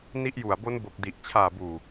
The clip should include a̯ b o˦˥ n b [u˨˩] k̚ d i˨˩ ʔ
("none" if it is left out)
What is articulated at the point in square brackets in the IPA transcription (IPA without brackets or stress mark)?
o˨˩